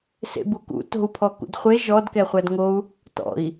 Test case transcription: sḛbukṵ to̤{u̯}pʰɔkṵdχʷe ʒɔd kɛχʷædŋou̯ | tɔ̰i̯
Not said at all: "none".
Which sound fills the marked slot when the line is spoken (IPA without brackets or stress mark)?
u̯